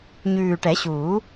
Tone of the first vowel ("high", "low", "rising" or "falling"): low